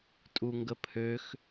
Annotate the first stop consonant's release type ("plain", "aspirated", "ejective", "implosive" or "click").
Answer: ejective